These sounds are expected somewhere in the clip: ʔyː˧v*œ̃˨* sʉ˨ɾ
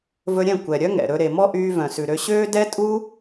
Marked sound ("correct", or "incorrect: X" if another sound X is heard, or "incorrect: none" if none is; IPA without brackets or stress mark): correct